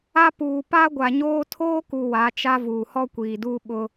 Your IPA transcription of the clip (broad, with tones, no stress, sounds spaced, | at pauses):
a˦ p uː˨ p a˦ ɡʷ a˨ ɲ oː˦ tʰ oː˦ k u˨ w a˨˦ t͡ʃ a˦ v uː˨ h ɔ˦ kʷ iː˨ d uː˦ ɓ ʊ˦